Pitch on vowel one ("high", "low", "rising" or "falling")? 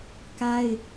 high